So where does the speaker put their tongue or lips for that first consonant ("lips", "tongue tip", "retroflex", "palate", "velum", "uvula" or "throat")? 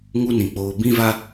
velum